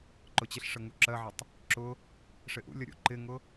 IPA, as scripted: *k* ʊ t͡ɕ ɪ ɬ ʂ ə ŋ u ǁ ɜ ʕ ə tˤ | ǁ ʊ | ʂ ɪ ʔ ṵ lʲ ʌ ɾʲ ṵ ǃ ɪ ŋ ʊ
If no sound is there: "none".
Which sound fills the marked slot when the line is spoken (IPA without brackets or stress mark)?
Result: ǃ